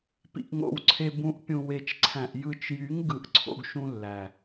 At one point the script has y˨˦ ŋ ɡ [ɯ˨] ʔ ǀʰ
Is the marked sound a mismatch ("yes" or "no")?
no